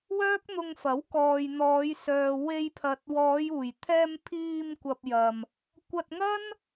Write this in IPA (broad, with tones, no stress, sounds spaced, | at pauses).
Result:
w œː˥ k̚ n̪ ʊ˧ ŋ f ɐ˨˥ w k ɔː˨ j n̪ ɔː˨˧ j s œː˨ w e˧ j pʰ ɐ˨ t̚ w ɔː˨˧ j uː˨˩ j t̪ʰ ɛː˧ m pʰ iː˧ m kʷ ɐ˨ p̚ j ɐ˨ m | kʷ ɐ˧ t̚ ŋ ɐ˥ n